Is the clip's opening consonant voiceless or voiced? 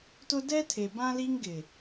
voiceless